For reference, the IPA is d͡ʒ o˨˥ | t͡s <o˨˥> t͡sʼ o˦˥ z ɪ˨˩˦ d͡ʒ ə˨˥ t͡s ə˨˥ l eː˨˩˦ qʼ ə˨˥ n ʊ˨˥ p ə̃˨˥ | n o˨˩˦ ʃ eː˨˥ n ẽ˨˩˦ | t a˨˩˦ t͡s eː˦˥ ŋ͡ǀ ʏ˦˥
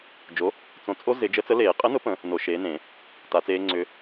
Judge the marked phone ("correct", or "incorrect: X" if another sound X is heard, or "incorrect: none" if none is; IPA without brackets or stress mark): incorrect: õ˨˥